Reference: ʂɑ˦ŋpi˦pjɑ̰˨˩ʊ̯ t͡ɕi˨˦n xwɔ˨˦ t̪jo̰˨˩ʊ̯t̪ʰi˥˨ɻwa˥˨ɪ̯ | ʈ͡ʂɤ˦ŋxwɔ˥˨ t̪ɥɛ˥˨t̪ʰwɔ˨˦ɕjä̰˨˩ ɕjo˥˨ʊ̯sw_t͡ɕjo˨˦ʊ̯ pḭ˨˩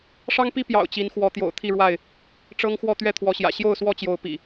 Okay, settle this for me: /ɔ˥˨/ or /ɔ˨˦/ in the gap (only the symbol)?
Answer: ɔ˥˨